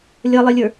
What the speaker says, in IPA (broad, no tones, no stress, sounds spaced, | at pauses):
lʲ ʌ lˠ ɪ lʲ ə˞